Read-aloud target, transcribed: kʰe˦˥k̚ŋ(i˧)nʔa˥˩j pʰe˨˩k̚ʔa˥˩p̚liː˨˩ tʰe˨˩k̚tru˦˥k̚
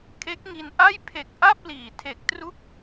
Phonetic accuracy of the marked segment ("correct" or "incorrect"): correct